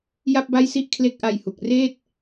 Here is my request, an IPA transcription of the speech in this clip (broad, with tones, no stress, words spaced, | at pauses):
ja˥˩p̚ba˥˩jsi˥˩ʔ kʰle˦˥k̚ʔa˧jhu˨˩k̚reː˥˩t̚